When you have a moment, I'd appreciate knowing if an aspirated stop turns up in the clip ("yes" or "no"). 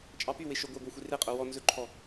yes